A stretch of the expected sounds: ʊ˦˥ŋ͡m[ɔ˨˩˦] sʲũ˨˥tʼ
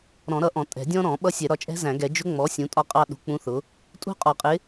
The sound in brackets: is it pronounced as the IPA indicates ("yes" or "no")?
no